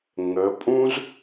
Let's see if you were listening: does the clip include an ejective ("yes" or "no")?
yes